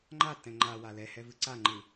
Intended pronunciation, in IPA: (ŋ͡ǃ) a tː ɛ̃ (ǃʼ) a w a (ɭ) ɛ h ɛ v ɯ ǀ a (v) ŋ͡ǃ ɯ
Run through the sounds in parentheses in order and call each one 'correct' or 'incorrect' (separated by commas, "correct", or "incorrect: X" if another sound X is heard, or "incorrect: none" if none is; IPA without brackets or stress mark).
correct, incorrect: ŋ͡ǃ, incorrect: l, incorrect: none